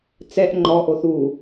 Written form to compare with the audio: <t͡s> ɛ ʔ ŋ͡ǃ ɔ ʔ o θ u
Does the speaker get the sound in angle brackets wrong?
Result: no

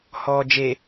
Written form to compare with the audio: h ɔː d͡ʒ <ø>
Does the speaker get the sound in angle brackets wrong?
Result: yes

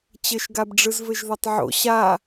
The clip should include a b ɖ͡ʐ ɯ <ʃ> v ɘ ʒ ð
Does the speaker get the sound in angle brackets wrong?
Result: yes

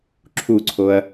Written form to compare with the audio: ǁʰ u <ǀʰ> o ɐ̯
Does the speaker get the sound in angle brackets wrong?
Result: no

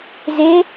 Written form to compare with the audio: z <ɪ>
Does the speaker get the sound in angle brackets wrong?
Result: no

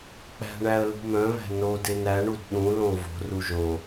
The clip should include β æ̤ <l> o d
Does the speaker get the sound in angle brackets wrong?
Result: yes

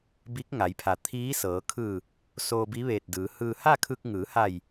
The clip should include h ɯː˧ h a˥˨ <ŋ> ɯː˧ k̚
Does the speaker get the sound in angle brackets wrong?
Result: yes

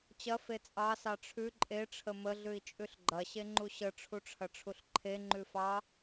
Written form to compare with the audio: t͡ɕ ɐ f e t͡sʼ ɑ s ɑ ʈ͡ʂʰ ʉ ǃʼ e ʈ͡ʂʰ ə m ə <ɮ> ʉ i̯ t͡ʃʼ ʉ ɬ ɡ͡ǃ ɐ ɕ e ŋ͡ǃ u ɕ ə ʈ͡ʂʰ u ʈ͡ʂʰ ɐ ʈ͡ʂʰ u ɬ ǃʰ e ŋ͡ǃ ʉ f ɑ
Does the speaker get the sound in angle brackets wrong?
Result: no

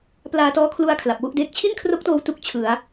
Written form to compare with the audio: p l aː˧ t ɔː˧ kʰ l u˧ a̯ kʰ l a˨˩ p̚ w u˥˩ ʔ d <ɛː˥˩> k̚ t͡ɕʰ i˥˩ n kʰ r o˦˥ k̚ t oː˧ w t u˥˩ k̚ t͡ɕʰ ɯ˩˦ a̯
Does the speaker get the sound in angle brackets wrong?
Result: yes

